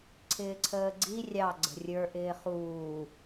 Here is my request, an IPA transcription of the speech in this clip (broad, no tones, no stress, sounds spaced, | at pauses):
ǀʰ ɪː ǀʰ əː ɡ͡ǀ i rʲ ɑ ɡ͡ǀ ə̤ rʲ ə˞ ʔ ɪː χ uː